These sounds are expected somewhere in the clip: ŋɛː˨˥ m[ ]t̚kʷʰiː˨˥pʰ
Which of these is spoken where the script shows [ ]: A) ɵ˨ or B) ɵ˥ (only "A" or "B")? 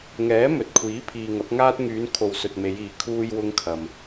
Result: A